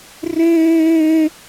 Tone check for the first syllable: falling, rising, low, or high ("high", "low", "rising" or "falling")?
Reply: high